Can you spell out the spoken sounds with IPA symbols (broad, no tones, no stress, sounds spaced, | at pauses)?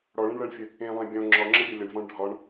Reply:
ɽ ɔ ɭ ẽ ɳ ɭ ɜ ɳ fʲ ə | ẽ lˠ ẽ bʲ ɔ̃ ŋ͡ǁ ɒ ŋ͡ǁ ə bʲ ɒ lʲ ə ɳ v ɔ̃ ɳ ɖʱ ɒ ɳ